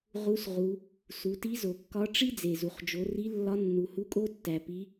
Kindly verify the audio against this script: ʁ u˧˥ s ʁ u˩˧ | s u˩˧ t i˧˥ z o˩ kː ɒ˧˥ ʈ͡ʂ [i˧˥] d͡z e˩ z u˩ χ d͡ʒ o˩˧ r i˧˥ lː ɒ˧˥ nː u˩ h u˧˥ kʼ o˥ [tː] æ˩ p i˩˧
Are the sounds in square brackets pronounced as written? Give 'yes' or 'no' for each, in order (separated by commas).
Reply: no, yes